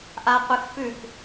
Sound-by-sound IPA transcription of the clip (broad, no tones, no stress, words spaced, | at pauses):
ʔaqʷɨxfʉk